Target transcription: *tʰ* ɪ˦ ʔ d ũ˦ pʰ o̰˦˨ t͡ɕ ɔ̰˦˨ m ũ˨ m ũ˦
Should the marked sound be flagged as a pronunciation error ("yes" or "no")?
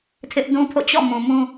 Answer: no